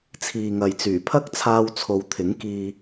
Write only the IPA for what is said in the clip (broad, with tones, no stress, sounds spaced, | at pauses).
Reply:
t͡sʰ iː˨ ŋ ɐ˨ j t͡s yː˨˩ pʰ ɐ˥ k̚ t͡sʰ aː˧ w t͡sʰ o˨˧ w t̪ʰ ɪ˨˥ ŋ k iː˧